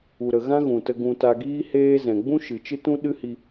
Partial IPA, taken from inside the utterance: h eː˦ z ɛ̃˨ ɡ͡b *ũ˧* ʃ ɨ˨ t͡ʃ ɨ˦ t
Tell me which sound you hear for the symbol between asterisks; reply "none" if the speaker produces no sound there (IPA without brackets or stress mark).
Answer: ũ˦